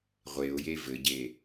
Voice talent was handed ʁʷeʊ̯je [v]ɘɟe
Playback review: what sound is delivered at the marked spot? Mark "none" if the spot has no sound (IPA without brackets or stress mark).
v